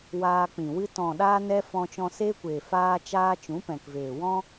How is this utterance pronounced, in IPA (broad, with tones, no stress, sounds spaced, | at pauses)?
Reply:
w aː˧ k͡p ĩ˨ w ɨ˦ t ɔ̃˨ ɗ aː˧ n ɛ˧ f ɔ̃˧ t͡ʃ ɔ̃˧ s eː˦ kʷ eː˨ f aː˦ t͡ʃ aː˦ t͡ʃ ũ˨˦ p ɛ̃˨ k v eː˨ w ɔ̃˦